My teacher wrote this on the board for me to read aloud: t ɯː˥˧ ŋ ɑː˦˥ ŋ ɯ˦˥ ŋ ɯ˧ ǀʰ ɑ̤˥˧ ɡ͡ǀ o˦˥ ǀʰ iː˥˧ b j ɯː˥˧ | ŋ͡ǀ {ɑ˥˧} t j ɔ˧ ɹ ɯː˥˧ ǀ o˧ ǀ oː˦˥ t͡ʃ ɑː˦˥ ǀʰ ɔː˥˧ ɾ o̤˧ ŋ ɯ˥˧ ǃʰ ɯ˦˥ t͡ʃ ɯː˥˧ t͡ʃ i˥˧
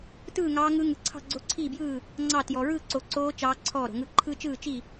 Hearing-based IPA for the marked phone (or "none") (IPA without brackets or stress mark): ɑ˥˧